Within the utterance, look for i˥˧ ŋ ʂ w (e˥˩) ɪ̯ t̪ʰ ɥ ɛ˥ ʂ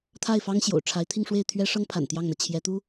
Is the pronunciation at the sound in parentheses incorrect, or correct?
correct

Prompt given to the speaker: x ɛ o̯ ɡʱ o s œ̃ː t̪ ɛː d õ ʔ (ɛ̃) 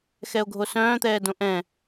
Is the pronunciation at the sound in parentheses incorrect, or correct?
correct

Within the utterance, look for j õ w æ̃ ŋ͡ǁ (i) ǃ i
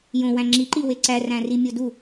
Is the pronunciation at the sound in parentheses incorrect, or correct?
correct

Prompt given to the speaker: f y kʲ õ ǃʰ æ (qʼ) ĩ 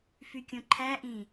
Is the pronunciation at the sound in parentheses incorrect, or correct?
incorrect: ʔ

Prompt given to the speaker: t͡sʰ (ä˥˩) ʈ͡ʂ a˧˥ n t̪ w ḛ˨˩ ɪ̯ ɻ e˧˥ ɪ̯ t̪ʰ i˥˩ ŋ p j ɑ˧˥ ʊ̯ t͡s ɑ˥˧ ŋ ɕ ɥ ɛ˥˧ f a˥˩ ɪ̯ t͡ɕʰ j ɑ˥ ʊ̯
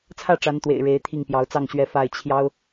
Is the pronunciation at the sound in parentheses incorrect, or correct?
correct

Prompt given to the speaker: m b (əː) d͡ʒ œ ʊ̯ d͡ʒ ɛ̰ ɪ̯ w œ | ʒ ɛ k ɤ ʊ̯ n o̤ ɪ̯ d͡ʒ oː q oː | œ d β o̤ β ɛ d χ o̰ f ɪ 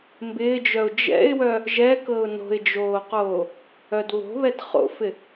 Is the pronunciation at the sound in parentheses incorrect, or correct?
incorrect: ɪː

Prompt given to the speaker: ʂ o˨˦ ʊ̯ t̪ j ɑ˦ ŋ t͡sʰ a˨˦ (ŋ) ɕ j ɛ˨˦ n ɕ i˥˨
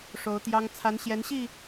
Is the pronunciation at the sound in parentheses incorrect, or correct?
incorrect: n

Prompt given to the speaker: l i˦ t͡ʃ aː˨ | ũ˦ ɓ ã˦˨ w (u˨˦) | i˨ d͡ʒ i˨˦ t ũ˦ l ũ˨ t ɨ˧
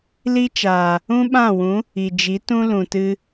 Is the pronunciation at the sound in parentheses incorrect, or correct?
incorrect: ũ˨˦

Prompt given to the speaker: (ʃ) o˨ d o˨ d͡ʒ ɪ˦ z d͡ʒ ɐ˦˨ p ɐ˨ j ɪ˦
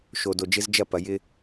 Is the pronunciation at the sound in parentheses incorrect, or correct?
correct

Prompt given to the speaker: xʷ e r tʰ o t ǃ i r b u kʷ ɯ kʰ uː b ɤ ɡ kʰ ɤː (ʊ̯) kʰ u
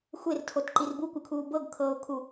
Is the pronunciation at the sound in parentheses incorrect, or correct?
correct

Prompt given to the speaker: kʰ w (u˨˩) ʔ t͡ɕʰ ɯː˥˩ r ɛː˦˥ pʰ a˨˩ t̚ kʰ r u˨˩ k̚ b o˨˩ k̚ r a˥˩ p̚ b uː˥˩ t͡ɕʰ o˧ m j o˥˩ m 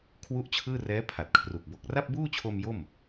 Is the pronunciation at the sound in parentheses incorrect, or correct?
incorrect: u˥˩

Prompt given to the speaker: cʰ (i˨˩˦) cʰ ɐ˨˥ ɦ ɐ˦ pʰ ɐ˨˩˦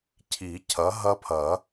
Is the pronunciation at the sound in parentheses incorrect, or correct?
correct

